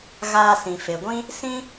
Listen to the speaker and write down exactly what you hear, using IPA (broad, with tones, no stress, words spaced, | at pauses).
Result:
ɣaː˧sĩ˨ fe˨ɡʷĩ˦ | sĩ˦